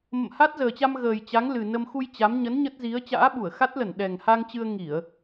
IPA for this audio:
m ə̰˧˨ m h a˦˥ t̚ z əː˨˩ t͡ɕ a˧ m ɣ əː˨˩ j t͡ɕ a˨˦ ŋ l ɨ˨˩ n ə˧ m x u˧ j t͡ɕ a˨˦ m ɲ ə˨˦ n ɲ ə˦˥ t̚ z i˨˦ ə̯ t͡ɕ a̰ː˧˥ ɓ u˧˩ ə̯ x a˦˥ t̚ l ə˧˩ n ɗ ɛ˨˩ ŋ h a˧ ŋ t͡ɕ ɨ˧ ə̯ ŋ i˧˩˨ ə̯

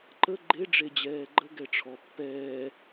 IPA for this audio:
ǃ ə ɡ͡ǃ e ɖ͡ʐ e d͡ʑ ɛː ɡ͡ǃ ə ɡ ɛ ʈ͡ʂʰ ɔ pː ɛː

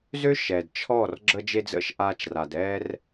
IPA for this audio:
z ø˦ ʃ ɛ˨ d t͡ʃʰ ɔ˦˨ r ɡ͡ǁ ə˧ d͡ʒ e˧ d͡z ə̰˧ ʃ ʔ aː˧ t͡ʃ r a˨ d ɛː˦ r

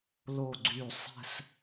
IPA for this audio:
l o˧˩ ɡ͡ǀ y˧˩ sˤ ɛ̤˥˧ s

